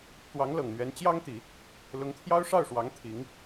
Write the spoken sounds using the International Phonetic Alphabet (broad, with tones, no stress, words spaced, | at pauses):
t̪wɑ˧˥ŋlɤ˨˩ŋn̪ɥɛ˧˥n t͡ɕjɑ˥ŋt̪i˨˩˦ | lʊ˧˥ŋt̪ʰjɑ˥ʊ̯ʂɑ˥˩ʊ̯ʂwɑ˧˥ŋ t̪ʰi˧˥ŋ